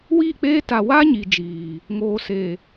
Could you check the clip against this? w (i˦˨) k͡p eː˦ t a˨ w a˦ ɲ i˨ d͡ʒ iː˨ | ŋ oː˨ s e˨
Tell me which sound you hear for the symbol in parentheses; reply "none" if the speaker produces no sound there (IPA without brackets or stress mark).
i˦˨